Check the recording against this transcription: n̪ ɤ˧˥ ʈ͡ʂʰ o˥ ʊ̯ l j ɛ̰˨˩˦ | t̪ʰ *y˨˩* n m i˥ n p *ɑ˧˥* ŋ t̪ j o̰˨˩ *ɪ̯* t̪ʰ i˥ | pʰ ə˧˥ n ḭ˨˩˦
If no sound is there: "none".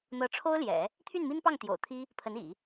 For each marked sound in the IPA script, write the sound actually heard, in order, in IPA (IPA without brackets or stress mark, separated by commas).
y˥˩, ɑ˥˩, ʊ̯